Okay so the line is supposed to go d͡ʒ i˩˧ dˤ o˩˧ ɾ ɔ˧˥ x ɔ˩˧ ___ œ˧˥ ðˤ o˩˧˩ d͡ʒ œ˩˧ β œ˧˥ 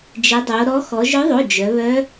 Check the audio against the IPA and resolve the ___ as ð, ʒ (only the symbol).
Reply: ʒ